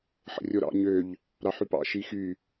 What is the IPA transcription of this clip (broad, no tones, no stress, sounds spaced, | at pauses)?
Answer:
ħ ə̰ rʲ o ɾ ɑ̰ ɲ ø ʎ | ɾ ɑ ħ y p ɑ̰ ʃ i x y